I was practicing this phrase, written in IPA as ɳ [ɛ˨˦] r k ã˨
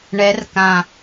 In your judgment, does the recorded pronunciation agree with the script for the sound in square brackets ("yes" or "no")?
yes